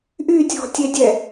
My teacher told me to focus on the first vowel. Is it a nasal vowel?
no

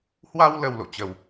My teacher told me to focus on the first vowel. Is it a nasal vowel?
no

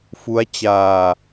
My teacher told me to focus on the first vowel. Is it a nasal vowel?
no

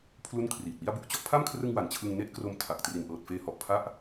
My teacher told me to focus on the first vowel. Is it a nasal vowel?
no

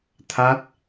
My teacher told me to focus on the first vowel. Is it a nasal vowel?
no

